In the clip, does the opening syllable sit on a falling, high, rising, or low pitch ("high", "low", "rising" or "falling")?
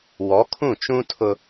rising